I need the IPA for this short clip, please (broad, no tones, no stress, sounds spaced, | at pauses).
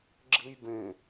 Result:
ɡ͡ǁ ɨ j b ẽ